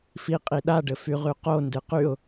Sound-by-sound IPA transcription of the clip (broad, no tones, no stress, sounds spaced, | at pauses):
f i qʼ i ɗ a ɖ ɘ f y ʁ y q o n d ɨ q y ʊ̯